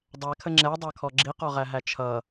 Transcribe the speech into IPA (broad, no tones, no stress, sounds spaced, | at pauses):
dˤ æ kʰ ə ŋ͡ǁ ɛ dˤ ɑ kʰ ɔ ɡ͡ǁ i q ɔ ʁ æ ɦ æ t͡ʃʰ ʌ